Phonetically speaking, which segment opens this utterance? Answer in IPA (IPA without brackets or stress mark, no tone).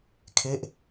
kʰ